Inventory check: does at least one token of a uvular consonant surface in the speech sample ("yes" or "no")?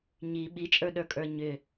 no